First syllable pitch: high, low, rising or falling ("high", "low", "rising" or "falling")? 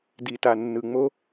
low